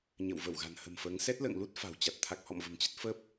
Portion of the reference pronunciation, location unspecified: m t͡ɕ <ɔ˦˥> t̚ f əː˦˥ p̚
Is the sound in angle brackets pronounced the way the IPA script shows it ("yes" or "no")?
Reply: no